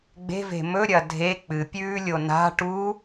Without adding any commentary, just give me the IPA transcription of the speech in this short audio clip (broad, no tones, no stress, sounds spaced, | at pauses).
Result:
ɡ͡b e̤ v e̤ m ɵ ɾʲ ɐ dʱ e k͡p ɨ pʲ ʉː lʲ o n a̤ ʈ u